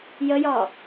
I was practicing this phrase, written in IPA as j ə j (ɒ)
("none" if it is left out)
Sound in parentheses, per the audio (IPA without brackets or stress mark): ɒ